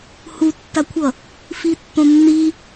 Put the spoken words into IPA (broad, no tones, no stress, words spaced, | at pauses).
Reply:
hutːakʷʰʌ | fitːõnːi